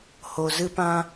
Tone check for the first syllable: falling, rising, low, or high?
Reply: low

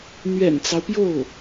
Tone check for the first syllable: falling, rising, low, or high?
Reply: low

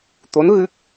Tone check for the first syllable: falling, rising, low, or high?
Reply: rising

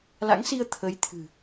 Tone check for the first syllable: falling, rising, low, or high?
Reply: rising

